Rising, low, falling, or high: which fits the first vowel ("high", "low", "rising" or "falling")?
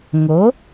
rising